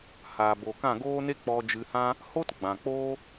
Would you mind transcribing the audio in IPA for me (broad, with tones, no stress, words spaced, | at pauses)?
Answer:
haː˨bo˨ kã˦˨ɡoː˦ne˦ k͡pɔ˧d͡ʒɨ˧ hã˦ | hoː˦tɡ͡bã˨k͡poː˦